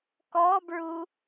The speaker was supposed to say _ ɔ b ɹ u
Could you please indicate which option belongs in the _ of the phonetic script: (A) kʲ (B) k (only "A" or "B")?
B